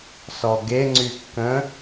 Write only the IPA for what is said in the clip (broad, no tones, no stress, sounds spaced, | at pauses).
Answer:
s ɔ ɡ e ŋ͡ǀ y kː ə̃